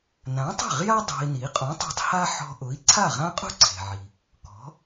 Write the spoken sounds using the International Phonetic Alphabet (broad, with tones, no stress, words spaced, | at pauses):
nã˩˥tˤe̤˥˩ʁja˥ dˤe̤˧i̯ni˩˥ qʼũ˩˥tˤe̤˧tˤ ha˥ ħɔ̤˧ʔʊ˩˥i̯ ǀʰa˥˩ʁã˥qʼṳ˥ǀʰe̤˩ ʕi˩ | kɔ̤˩˥